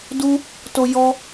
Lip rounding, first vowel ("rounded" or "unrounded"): rounded